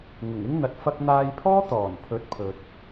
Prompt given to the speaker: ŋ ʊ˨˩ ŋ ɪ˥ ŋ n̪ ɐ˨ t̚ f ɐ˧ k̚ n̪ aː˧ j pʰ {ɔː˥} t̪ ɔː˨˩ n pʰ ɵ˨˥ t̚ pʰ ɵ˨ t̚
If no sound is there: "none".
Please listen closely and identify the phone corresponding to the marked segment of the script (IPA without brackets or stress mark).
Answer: ɔː˥